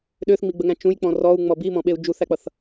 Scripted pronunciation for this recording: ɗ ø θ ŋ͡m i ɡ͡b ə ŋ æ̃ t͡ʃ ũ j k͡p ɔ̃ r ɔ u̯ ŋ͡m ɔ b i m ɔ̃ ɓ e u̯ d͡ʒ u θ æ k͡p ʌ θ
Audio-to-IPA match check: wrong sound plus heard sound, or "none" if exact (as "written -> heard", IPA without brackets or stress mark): none